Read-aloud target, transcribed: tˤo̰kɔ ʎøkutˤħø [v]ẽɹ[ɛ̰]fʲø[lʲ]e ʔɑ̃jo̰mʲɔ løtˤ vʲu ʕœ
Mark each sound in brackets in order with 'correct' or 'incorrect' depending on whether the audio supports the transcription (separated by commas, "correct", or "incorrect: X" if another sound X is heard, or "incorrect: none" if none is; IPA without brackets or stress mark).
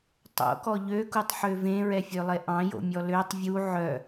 correct, incorrect: ɛ, incorrect: lˠ